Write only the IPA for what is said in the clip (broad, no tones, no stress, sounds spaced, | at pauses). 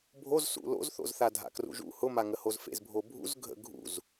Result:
bʱ o z s ṵ l o̰ z θ o̰ z θ a dʱ a̰ k r ṵ ʒ ṵ h ʊ m a ŋ ə h o z f ḛ z bʱ o bʱ ṵ z ɡʱ ə̰ ɡʱ ṵ z